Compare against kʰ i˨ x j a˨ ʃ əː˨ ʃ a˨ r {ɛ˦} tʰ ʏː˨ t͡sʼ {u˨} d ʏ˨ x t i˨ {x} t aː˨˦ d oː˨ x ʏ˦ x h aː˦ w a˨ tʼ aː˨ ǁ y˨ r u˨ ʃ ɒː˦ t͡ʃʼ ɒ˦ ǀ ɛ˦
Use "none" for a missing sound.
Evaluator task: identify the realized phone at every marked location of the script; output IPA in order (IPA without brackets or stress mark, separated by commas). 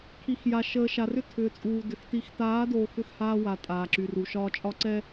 ʏ˦, uː˨, x